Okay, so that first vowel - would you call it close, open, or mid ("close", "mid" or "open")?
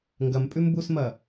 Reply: open